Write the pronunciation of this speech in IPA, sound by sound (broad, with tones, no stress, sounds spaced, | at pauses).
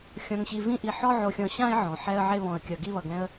xʲ ɔ̃˧ ŋ ɕ i˧ v ĩ˦ ʔ i˧ ħ ɔ˦ ʕ o˧ xʲ ɔ̃˧ ɕ ã˦ ɪ̯ ʕ ɔ̃˨ ħ ɛ˧ ə̯ ʕ e˧ β ɔ̃˨ ə̯ kʲ ʌ˨ ɡ i˧ β ʌ˨ ɡ ɛ̃˧ ə̯